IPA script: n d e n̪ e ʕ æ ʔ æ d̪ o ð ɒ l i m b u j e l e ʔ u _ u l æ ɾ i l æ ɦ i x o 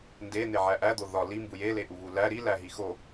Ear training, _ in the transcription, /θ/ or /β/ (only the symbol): β